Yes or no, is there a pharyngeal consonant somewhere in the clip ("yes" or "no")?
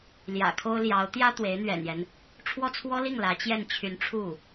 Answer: no